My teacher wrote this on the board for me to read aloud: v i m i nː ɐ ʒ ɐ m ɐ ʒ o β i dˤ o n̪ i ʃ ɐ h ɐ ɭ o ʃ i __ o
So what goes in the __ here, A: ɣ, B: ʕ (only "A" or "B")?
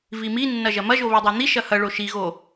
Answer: A